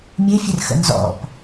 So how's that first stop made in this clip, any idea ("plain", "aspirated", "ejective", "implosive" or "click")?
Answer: plain